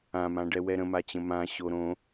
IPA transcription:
ãmãɖɛ wɛɾə̃mat͡ɕə̃ mã ɕoɾõ

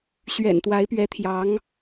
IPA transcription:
ɕɥɛ̰˨˩nt̪wa˧˥ɪ̯pɥɛ˧˥t̪ʰjɑ˧˥ŋ

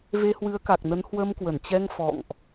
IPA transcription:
ve˧hwɨ˨˦ə̯ka˨˩k̚nə˨˦n hwə˧mkwə˧˩nt͡ɕɛ˧ŋ fɔ̰˧˨ŋʔ

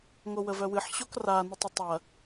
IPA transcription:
ŋowəvœwɨħ ɕokra nətˤətˤɐ

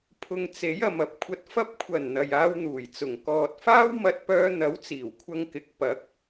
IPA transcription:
pʰʊ˨ŋt͡se˨˥j ɐ˨mɐ˨p̚kʷʰɐ˧t̚ fɐ˧p̚kʷʰɐ˨˩n n̪ɐ˨jaː˧wn̪uː˨˩jt͡sʊ˨˩ŋ kɔː˨t̚faː˥w mɐ˧t̚pœː˧n̪ɐ˨˥w t͡siː˨˩wkʷʰɐ˧ŋkɪ˨˥k̚ pɐ˨˥k̚

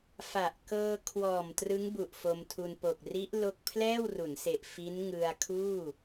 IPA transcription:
fa˨˩ʔ kɤː˧kʰwɔː˨˩m trɯ˦˥ŋbu˨˩ʔ fo˧mtʰu˧n po˨˩k̚ri˦˥ʔ lo˥˩k̚ pʰlɛː˥˩wru˩˦nse˨˩ʔ fi˦˥nŋɯ˧a̯kʰuː˥˩

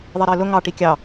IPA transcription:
ðˤiɾɪːlʊ ŋɑ ʈikʲɑ

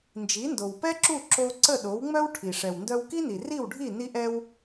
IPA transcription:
nd͡ʒi˩˥ndo˩wpɛ˥ǁu˥˩ ǁo˧ ǀə˥˩ɗo˩˥wŋ͡mœ˥w ʈʰi˩ ʂɛ˩wndœ˧wki˥ni˩ ri˥˩wɖʱi˥˩ ni˧ʔɛ˧w

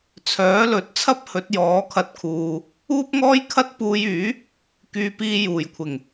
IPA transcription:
t͡sʰœː˨˥lɵ˨˥t̚t͡sʰɐ˥p̚ hɵ˨˥t̚jɔː˨˥kʰɐ˧t̚kʰuː˨ | uː˥p̚ŋɔː˥jkʰɐ˥t̚ puː˧jyː˨˥ | kyː˧piː˧ juː˨˩jkʷʰɪ˨˩ŋ

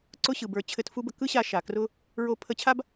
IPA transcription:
ǀʊ˥ɕɯ˩bə˞˧ t͡ɕʰɘ˧tfu˥bə˧ kɯ˥ɕa˧ ʃa˩krʊ˥ | ɹo˧ pʰə˧t͡ɕʰa˥b

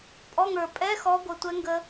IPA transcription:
pʼɔ˧˥˧ŋə˞˨˩ pʼɛ˧˥˧xɔ˨˦ɡʷə˨˩tʷɛ˨˦ ŋɡə˦˥

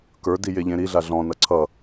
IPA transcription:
kə˞di jeʎẽɾiɮa ɮɔ̃nʌ ǀʰʌ

